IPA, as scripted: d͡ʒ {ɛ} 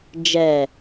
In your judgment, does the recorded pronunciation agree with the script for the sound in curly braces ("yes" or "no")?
yes